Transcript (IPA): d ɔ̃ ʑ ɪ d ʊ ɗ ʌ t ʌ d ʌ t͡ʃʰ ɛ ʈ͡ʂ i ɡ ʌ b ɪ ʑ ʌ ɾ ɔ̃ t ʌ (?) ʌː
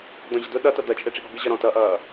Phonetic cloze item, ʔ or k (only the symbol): ʔ